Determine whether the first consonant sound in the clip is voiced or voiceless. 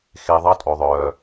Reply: voiceless